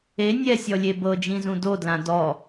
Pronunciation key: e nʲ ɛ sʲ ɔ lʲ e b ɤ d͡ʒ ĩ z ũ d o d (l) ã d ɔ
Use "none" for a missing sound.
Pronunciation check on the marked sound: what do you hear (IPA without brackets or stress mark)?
l